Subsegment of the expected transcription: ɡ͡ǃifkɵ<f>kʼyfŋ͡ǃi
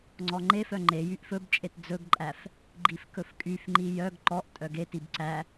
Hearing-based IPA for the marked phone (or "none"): f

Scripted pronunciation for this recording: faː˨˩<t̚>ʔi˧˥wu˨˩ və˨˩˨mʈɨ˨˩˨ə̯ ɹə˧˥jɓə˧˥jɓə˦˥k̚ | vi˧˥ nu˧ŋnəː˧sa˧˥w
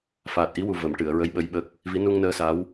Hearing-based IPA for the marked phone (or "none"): t̚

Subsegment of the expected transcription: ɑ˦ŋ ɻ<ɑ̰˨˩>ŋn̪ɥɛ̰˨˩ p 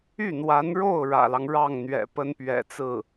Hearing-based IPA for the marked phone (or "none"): ɑ˥˩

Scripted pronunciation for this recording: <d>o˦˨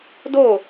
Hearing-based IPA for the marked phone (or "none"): d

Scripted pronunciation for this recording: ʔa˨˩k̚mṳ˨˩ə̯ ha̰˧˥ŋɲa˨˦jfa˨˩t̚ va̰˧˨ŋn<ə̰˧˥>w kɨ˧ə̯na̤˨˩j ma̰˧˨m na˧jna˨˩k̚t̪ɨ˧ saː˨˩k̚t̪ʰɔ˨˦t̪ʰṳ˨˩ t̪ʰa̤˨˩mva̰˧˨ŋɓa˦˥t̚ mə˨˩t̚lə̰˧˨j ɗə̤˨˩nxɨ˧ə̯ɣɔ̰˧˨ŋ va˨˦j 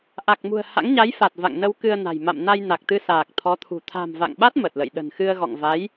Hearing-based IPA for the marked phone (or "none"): ə˧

